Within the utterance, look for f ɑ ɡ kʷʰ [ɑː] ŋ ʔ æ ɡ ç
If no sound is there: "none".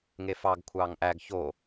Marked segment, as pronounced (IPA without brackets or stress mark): ɑː